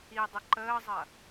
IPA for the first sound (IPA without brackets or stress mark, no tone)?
i